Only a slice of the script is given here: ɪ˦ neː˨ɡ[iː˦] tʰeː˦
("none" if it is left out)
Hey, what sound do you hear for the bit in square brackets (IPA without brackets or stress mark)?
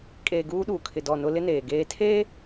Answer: eː˦